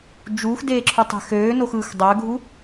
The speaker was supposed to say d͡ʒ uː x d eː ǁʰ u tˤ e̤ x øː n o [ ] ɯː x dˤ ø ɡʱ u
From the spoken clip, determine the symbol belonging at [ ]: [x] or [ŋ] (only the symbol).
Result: x